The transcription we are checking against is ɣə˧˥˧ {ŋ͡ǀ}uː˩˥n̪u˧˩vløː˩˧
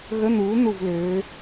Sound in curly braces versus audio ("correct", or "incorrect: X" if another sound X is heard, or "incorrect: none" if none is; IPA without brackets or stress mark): incorrect: n̪